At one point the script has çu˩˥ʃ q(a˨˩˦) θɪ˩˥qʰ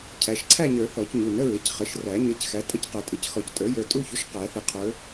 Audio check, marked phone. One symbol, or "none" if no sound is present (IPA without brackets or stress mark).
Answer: æ˨˩˦